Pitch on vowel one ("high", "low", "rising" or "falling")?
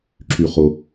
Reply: low